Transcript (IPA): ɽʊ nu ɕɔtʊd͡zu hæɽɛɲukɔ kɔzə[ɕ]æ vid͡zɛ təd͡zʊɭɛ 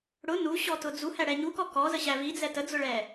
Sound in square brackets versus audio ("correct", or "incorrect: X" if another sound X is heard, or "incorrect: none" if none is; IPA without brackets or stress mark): correct